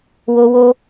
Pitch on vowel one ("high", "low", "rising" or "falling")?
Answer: high